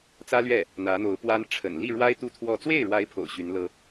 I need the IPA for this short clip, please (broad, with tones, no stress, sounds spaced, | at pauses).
t͡s ä˥ l ɥ ɛ˥˩ | n̪ ä˧˥ n̪ o˧˥ ʊ̯ p w a˥ n ʈ͡ʂʰ ə̰˨˩ n l i˥˩ ɻ w a˥ ɪ̯ t̪ u˥˧ t̪ʰ w ɔ˥˧ t͡s w e˥˩ ɪ̯ ɻ w a˧˥ ɪ̯ pʰ o̰˨˩ ʊ̯ ɕ y˧˥ n l ɤ˥